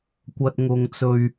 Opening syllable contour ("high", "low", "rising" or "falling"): high